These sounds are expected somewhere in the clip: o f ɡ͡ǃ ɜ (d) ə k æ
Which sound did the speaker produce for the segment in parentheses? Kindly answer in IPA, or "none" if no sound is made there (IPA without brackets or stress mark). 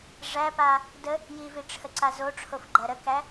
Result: ɾ